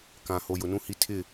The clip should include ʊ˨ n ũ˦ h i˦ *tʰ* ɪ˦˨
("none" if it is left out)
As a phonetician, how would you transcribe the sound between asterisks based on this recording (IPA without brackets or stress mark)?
tʰ